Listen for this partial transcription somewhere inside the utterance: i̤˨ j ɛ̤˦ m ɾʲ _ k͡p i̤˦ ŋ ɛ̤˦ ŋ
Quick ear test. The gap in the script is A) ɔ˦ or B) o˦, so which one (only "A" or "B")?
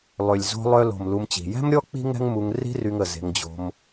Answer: A